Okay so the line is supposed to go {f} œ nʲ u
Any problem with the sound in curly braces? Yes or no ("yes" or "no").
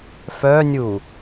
no